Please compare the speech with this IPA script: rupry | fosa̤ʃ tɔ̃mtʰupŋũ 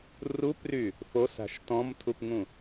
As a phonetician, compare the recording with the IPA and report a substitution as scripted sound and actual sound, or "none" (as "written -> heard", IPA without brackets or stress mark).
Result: none